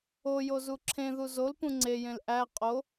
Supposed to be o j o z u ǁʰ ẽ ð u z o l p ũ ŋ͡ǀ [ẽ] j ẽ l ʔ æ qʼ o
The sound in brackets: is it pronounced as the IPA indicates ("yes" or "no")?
no